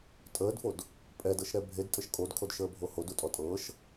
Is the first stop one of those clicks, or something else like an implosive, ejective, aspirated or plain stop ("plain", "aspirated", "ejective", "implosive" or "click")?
ejective